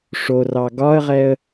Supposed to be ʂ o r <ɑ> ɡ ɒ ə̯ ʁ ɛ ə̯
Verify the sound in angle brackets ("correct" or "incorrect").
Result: correct